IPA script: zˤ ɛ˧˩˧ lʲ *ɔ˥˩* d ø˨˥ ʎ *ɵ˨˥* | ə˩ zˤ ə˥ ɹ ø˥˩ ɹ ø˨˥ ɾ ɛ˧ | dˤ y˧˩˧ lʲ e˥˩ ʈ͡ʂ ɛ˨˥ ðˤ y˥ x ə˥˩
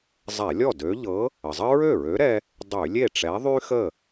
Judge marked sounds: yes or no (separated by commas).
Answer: yes, no